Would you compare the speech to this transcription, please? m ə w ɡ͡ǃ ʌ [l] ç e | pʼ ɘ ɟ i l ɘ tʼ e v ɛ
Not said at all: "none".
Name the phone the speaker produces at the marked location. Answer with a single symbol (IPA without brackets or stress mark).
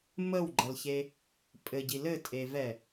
l